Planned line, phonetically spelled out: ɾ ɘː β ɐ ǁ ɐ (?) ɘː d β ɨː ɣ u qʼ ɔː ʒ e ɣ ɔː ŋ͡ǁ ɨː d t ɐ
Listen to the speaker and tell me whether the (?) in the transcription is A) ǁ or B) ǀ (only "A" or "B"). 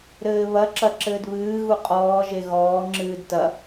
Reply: A